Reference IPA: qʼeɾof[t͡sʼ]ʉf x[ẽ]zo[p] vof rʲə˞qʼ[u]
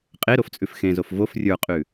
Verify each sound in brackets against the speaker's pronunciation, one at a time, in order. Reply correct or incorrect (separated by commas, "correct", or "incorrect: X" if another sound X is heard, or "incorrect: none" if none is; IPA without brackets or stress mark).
correct, correct, incorrect: f, incorrect: ʉ